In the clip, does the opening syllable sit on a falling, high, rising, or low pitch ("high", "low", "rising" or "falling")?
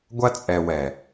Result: high